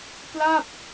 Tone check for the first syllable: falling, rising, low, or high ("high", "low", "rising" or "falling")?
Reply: falling